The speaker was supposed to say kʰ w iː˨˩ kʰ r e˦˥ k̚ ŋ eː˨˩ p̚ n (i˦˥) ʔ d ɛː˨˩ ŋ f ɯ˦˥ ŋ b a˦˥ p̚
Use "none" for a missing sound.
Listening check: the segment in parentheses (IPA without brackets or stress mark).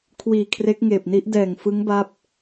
i˦˥